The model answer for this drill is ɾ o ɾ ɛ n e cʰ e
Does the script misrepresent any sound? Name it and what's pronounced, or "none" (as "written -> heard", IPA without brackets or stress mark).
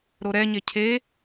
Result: n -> ɲ